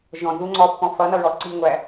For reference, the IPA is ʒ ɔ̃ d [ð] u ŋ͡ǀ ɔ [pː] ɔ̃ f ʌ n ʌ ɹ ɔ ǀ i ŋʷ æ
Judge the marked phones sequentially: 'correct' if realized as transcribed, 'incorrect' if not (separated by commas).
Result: correct, correct